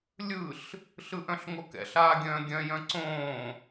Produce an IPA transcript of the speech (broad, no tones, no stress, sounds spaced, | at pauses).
lʲ ɯ ɬ | ɬ ɯ ʔ œ̃ ɬ ŋ o k ɛ̰ ɬ aː ɡʲ œ̃ː ɡʲ œ̃ j œ̃ ǀ õː